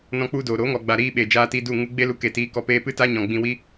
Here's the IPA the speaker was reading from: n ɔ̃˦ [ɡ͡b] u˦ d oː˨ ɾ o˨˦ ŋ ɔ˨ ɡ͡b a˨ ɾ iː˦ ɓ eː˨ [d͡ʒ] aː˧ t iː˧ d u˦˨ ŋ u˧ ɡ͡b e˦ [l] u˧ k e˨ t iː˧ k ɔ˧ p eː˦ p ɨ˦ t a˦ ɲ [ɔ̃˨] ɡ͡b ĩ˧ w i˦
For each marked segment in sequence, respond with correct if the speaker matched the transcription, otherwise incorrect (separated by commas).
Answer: incorrect, correct, correct, correct